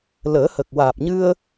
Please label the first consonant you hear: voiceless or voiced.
voiced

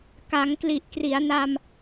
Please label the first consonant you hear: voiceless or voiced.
voiceless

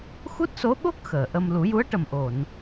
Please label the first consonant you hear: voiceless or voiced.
voiceless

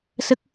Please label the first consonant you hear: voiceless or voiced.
voiceless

